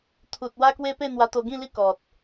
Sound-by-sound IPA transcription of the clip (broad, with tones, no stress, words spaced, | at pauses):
t̪ʰu˨t̚ wa˦kwe˦pe˥˧ n̪wa˧t̪o˧ ɡĩ˥˧li˦ kɔ˨t̚